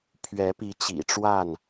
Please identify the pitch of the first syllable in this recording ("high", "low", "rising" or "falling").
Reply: rising